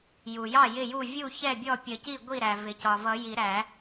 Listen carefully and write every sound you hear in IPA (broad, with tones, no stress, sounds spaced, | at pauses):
j u˩ j ɑ˥˩ j ɪ˥˩ j u˥˩ vʲ u˥˩ ç ɛ˥˩ bʲ ɔ˥˩ pʲ ə˨˩˦ c i˥˩ ɡʷ i˥˩ ɾ æ˩ v ɪ˩ c ɒ˩ v ʌ˨˩˦ j i˨˩˦ ɾ æ˨˩˦